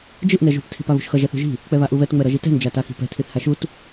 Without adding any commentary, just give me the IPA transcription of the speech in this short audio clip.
d͡ʒɯʔ nɛʒṳp tʰi̤paβṳʃxʌ ʒɛθṳʒi̤ | k͡pɛβaʔuβɛt ŋ͡mɛɾʌʒitɛ̤n d͡ʒataxi̤pɛ̤ tʰiθhaʃut

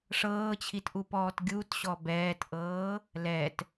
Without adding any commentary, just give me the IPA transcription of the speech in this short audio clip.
ʂɤːt͡ɕʰitʔupɔːt ɡʲutɕɔ bɛːtʔɤː | lɛt

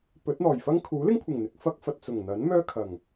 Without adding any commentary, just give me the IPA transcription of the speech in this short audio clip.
pɵ˨˥t̚n̪ɔː˨˩jfɐ˥ŋ kʰuː˨˥lɪ˥ŋkʷʰɪ˨˩ŋ n̪ɪ˨k̚ fɐ˥k̚fɐ˨t̚ t͡sʊ˨˩ŋn̪ɐ˨˥n mœː˥kʰɐ˨˩ŋ

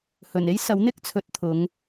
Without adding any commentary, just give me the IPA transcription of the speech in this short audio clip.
hɵ˨˩ne˥jsɐ˨˥w n̪ɪ˥k̚t͡sʰɵ˨˥t̚t̪ʰʊ˨˧ŋ

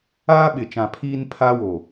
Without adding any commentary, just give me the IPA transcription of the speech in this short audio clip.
aː˦ɓɪ˨t͡ʃã˨ pʰiː˦n pʰaː˦woː˨

